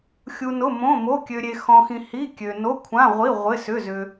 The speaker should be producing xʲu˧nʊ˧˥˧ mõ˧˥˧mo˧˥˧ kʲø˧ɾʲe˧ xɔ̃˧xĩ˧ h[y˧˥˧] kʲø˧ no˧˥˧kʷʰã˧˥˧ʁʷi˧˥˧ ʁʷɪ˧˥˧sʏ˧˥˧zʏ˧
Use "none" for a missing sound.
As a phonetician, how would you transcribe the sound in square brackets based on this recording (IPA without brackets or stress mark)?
i˧˥˧